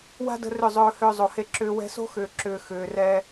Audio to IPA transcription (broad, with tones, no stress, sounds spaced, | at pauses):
w a̤˦ d ə̤˧ r ʏ˦˨ zˤ ɵː˧ h ʏː˧ zˤ o˨ h e˧ ǁ ʏː˧ w ɛ̤˧ s o̤˦ x ʏː˨ ǁ ʏː˨ x ʏː˨ r ɛ˧